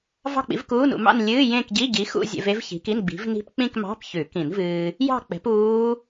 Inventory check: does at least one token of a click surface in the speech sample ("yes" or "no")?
no